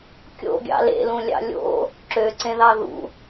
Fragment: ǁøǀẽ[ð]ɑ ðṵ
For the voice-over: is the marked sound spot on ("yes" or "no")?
yes